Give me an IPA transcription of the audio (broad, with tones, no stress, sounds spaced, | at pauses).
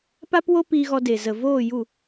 p a˦ p w o˦ p iː˧ ɣ ɔ˧ d e˨ z ə˨ v oː˦˨ j u˦˨